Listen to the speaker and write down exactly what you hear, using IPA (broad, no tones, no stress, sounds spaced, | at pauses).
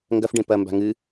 ŋ ɡ ɐ f ɖ ẽ p ɐ m b a̤ ŋ ɨ